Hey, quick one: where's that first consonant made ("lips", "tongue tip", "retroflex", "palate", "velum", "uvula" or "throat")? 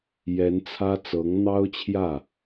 palate